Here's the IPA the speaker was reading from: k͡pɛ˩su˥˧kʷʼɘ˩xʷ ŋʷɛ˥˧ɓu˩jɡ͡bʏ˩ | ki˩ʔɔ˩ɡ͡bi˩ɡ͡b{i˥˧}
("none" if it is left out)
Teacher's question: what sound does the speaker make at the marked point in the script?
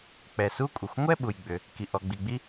i˥˧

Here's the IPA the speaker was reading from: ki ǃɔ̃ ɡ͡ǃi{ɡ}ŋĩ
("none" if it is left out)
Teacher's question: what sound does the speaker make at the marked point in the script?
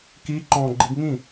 ɡ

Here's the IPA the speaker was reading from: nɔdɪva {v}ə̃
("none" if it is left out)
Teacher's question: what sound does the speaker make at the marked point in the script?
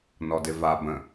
b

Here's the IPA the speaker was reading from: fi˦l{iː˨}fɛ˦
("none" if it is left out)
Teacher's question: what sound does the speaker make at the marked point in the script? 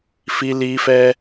iː˦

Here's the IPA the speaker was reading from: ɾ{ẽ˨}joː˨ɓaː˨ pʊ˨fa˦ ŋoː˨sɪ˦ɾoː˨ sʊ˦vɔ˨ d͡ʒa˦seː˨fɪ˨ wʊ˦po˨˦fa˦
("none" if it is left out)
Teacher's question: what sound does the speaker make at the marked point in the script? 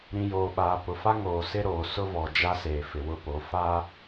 ĩ˨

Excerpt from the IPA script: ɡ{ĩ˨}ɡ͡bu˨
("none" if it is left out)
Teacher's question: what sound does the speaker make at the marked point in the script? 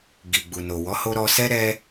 i˨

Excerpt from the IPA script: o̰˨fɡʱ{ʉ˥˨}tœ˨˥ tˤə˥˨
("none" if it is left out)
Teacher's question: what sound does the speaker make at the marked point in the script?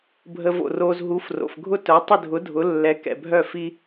ʊ˥˨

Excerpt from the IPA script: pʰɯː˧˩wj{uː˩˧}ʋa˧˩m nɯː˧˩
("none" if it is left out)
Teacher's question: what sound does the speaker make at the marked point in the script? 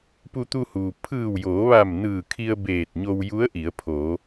oː˩˧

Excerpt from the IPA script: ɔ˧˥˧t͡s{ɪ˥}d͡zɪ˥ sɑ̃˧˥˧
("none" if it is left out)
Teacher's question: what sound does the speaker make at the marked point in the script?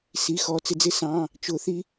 ɪ˥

